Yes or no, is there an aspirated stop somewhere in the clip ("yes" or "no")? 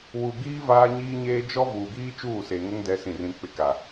no